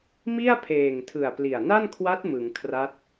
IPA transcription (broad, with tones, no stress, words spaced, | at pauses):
mi˥˩a̯pʰeː˨˩ŋtʰɯ˨˩a̯ pli˨˩a̯na˥˩nkʰwa˦˥t̚ mɯ˩˦ŋkʰra˦˥t̚